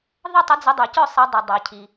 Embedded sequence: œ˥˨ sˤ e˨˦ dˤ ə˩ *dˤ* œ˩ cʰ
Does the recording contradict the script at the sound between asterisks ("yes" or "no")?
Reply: no